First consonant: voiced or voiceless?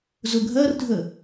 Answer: voiced